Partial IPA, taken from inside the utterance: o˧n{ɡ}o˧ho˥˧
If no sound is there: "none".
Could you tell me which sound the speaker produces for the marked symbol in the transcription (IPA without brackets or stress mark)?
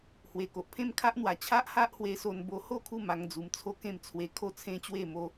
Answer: b